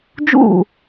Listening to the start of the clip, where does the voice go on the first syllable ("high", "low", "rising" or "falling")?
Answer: falling